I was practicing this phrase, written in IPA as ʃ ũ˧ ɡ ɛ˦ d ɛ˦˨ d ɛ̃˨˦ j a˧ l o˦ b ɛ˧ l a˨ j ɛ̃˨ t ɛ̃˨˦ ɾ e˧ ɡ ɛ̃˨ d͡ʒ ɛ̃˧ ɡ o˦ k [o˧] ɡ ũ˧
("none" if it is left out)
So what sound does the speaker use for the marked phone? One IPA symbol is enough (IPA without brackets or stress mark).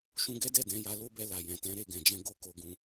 o˧